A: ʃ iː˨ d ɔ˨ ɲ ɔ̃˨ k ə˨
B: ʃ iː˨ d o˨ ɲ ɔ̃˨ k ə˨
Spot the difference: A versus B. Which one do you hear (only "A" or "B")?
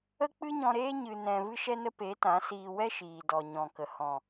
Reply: A